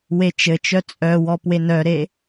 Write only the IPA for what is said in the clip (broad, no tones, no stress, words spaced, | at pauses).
wet͡ʃɘt͡ʃœ t͡sʼœwɔ pwenœɾe